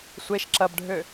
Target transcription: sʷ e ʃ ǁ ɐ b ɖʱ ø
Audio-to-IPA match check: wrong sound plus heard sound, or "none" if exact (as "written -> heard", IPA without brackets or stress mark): none